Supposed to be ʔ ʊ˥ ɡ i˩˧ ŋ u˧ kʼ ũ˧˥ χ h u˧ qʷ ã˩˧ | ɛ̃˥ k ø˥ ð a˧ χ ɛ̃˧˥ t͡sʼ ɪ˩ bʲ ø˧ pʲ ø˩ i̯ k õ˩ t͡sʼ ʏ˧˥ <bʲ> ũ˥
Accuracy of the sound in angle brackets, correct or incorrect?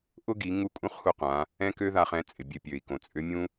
incorrect